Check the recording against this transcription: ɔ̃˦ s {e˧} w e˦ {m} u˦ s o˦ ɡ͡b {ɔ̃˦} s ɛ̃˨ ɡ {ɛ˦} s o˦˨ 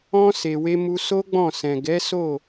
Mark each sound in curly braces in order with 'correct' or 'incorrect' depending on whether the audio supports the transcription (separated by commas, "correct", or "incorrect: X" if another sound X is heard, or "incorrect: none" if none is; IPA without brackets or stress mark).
correct, correct, incorrect: ɔ̃˦˨, incorrect: ɛ˨˦